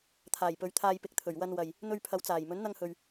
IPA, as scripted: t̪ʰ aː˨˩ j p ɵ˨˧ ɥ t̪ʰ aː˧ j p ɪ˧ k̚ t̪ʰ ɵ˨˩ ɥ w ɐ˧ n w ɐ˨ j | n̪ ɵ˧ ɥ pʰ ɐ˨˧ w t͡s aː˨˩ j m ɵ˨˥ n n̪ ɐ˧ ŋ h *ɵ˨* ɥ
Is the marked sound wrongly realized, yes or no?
no